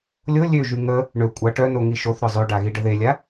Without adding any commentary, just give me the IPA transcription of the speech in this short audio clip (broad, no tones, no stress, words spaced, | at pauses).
lʲo lʲøʒy ŋə | ɳø kʷʼa ʈœno ŋiʃoθ ɾœzˤøɖaɣi ɖəðelʲa